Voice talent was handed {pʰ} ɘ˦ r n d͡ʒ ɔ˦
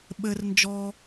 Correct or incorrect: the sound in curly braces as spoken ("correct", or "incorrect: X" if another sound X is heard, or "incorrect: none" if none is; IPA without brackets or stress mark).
incorrect: ɓ